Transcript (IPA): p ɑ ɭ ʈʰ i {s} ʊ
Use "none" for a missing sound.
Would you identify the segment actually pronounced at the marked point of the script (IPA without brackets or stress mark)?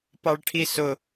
s